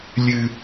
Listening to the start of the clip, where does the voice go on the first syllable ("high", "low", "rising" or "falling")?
low